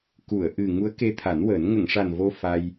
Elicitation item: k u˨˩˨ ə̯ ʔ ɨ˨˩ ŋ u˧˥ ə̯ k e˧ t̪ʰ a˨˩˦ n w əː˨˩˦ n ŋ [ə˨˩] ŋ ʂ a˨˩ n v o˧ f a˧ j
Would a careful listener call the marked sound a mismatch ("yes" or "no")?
yes